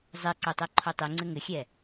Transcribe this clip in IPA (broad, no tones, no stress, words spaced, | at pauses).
zˤeǀo tˤɛǃʰotˤiŋ͡ǀɘ ŋɘxʲɛ